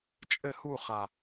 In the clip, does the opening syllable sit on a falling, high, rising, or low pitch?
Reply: falling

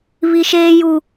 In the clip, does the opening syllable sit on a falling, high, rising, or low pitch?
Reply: high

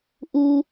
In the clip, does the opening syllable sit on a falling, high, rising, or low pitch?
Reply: low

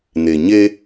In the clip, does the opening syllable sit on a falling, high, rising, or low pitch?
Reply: low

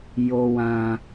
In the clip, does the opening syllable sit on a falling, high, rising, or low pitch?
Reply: low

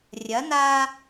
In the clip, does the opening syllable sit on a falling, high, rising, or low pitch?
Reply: rising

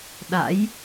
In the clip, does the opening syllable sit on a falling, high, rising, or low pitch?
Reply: rising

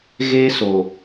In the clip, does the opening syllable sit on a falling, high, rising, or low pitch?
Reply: high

